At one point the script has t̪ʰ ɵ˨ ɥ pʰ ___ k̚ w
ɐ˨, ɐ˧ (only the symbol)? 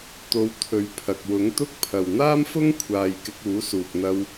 ɐ˨